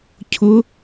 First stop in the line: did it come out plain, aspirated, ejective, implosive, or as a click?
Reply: aspirated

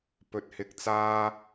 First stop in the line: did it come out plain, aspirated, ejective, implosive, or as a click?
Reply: plain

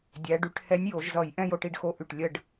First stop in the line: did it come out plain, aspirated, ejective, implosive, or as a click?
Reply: plain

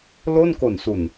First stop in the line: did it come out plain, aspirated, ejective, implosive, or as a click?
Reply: plain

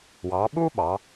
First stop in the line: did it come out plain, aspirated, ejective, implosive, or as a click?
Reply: implosive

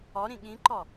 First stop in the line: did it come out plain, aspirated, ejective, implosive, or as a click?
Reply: implosive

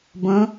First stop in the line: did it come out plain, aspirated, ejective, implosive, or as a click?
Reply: plain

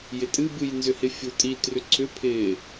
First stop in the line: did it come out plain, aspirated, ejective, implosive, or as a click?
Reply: ejective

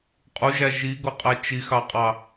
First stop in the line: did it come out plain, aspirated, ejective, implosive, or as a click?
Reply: ejective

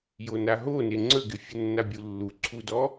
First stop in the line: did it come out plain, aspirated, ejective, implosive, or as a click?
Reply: click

